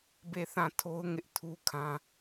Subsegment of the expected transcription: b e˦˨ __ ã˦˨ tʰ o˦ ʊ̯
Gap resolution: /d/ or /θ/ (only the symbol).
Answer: θ